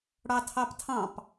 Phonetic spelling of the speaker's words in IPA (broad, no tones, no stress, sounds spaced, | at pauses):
ɽ ɑ tʰ ɑ p tʰ ɑ̃ p